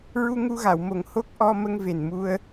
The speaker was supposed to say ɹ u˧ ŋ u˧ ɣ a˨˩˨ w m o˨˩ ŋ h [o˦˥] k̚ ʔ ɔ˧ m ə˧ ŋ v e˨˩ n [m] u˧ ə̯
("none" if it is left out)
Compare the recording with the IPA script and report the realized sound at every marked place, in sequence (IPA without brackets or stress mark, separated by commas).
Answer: o˦˥, m